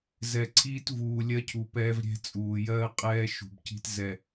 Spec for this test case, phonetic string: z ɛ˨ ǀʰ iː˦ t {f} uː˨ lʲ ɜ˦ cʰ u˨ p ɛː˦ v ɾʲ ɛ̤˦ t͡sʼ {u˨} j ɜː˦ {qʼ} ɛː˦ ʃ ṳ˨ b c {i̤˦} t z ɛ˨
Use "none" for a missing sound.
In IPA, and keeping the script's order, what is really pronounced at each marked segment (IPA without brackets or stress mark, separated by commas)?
v, uː˨, qʼ, i̤˦